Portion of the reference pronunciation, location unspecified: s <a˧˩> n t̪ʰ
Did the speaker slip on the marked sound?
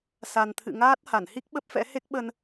yes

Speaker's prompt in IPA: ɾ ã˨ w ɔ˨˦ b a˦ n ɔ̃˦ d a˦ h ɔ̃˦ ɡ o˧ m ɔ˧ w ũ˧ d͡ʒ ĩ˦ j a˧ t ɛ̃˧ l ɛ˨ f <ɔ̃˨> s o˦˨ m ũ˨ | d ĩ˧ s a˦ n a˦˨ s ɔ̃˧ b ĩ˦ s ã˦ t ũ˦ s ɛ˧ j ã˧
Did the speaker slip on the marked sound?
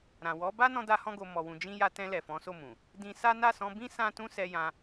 yes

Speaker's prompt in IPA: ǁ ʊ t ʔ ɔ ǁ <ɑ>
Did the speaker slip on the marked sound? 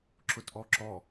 yes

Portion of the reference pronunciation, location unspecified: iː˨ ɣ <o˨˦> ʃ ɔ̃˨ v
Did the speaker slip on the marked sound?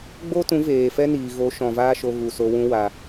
no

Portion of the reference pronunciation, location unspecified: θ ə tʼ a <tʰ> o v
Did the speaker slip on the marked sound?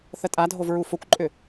yes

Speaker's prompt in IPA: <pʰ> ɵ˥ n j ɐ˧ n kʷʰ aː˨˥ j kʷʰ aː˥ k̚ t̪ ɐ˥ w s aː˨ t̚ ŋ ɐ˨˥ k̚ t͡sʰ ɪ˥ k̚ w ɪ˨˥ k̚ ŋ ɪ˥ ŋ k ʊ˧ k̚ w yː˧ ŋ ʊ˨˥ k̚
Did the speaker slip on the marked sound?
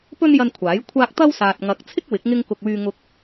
yes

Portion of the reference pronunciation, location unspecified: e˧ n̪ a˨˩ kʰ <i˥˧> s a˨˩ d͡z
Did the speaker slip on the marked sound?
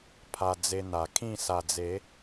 yes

